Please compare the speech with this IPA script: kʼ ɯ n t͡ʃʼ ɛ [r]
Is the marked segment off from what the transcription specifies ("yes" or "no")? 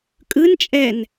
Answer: yes